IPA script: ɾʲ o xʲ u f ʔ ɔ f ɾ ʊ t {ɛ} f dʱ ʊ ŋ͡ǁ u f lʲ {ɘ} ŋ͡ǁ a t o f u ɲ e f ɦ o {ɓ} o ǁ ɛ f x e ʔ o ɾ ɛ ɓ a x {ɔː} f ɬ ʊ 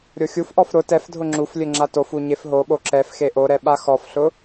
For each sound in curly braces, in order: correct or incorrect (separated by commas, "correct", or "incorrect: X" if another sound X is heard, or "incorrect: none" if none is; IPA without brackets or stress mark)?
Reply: correct, correct, correct, incorrect: ɔ